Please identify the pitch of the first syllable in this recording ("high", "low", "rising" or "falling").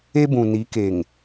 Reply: high